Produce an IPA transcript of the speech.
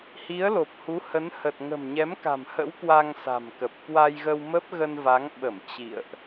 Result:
h i˨˦ ə̯ l o˨˩ p̚ h u˨˦ h ə˨˦ n h ə˨˩ t̚ ŋ ə̤˨˩ m ɲ ɛ˨˦ m k a̤˨˩ m h ə̰˧˥ w k w a˧ ŋ s a̤˨˩ m k ə˨˩ p̚ k w a˧ j ɣ ə˧ w m ə˦˥ p̚ ɣ ə˧ n v a˨˦ ŋ ɓ ə˧˩ m t͡ɕ ḭ˧˨ ə̯ ʔ

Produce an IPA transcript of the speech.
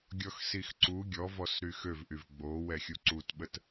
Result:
ɡʲ ɔ x s i x ǀ u ɡʲ ɔ v ɔ s ɾ y x ø v ʔ y v ɡ͡b o w ɛ xʲ u ǀ u t ɓ ə t

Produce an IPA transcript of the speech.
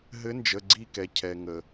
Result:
ɦ ɘ˧˥ n d͡ʒ ə˩˧˩ ɡ͡ǀ i˦˨ k ɛ˩ cʰ ɛ˩ ŋ ə˩

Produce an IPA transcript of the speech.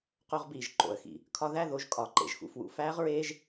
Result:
q o˧ ʁ b iː˨ ʒ ǃ o̰˨ ə̯ x ḭ˨ | kʰ ɒ˧ ð æ˦˨ ð o˨˦ ʒ kʼ ɒ˨˦ ǃ ḛ˨ ʒ x ṵ˧ f w ṵ˧ f æː˦ ʁ ɹ eː˦ ʒ

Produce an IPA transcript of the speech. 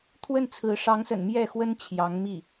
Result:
t̪ʰ w ə˥˩ n t͡sʰ ɹ̩˧˥ ʂ ɑ˧˥ ŋ s ə̰˨˩ n m j ɛ˥˩ x w ə˥ n t͡ɕʰ j ɑ˧˥ ŋ m i˥˩

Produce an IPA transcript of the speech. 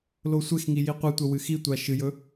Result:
l o sʷ e x ŋ i j i qʷ ɨ tʷ ɐ w ɨ x i tʷ a ʃ ɨ j ɵ

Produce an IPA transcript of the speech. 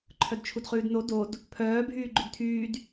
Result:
ǃʰ œ d t͡ʃʰ u d χ ʉː d n o d o d | pʰ œː bʱ yː ɡ͡ǃ ʉ d tʰ yː d

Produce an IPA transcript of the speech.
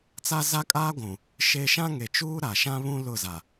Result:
t͡s a˦ z a˦ kʼ aː˦ ɡʷ ũ˨ | ʃ e˦ ʃ ã˦ ŋ e˨ t͡ʃ uː˦ ɾ a˨ ʃ ã˦ β ũ˦ l ʊ˦˨ z a˨

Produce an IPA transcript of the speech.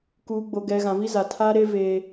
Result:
k uː˨ ɡ͡b o˨ ɡ ɛ˨ ɣ ã˨ v i˦ z a˨ tʰ aː˦ ɾ e˦ v e˦

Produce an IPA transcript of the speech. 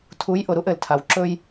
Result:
tʰ u˨˦ j ʔ ʊ˨ ɾ u˦ ʔ ɘ˨ l tʰ a˨ w ǁ ɵ˦ j

